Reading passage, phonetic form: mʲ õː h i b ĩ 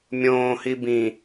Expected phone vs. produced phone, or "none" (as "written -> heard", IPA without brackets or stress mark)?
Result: none